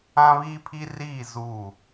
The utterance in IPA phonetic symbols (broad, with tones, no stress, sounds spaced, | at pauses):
ã˦ β iː˦ pʰ i˦ r iː˦˨ z uː˦˨